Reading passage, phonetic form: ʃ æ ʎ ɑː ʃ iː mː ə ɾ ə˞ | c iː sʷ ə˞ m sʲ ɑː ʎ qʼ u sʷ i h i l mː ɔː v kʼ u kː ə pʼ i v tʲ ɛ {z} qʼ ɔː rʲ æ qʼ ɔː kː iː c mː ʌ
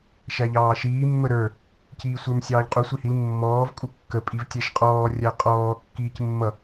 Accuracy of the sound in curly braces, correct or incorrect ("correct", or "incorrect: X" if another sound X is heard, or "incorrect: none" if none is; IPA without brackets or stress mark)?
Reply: incorrect: ʃ